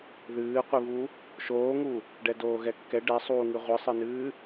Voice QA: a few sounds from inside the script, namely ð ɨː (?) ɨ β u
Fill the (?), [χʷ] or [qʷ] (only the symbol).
qʷ